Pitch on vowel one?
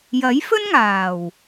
rising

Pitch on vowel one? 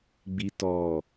low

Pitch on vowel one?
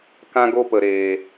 high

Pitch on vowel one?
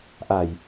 low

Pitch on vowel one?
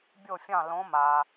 falling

